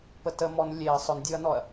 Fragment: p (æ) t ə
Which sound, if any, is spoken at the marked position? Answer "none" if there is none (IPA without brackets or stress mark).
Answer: ə